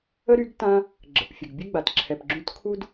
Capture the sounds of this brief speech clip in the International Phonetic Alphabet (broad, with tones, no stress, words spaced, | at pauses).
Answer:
ə˥ɾy˧˥ɡ tã˥ | ɡ͡ǁə̰˩˧pfʲə˩ɡ bʲə˥ ɡ͡ba˩t ǁʰɛ˩pɡ͡ǁũ˧˥tkʰu˥d